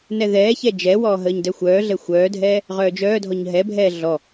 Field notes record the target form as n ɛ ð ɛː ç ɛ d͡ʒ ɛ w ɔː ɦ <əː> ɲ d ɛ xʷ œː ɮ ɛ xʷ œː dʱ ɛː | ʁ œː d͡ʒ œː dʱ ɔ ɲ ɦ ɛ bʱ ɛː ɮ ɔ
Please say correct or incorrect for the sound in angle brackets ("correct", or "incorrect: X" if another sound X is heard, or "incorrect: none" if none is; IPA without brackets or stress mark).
correct